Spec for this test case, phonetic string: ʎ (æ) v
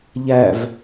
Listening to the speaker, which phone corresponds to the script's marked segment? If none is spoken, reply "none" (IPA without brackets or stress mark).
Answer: æ